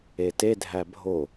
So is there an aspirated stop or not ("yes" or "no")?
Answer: no